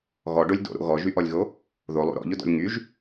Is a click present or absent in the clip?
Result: absent